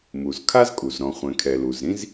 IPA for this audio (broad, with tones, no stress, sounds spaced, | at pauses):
m u˩ z kʰ a˥ z kʼ u˩ z ɾ ɔ̃˩ χʷ ɛ̃˩ kʰ ɛ˩ l u˩ z ɾ ĩ˥ z